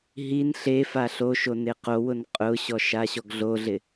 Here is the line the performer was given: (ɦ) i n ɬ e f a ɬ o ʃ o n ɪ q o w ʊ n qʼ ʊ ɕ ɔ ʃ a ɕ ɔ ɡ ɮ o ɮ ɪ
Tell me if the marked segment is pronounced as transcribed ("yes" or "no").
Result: yes